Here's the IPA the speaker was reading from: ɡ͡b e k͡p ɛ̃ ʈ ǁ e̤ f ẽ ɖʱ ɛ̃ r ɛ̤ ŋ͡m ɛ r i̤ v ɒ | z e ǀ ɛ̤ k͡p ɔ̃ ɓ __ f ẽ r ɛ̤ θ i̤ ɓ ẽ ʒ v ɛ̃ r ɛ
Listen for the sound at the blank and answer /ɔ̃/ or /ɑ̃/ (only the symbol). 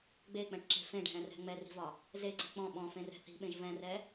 ɔ̃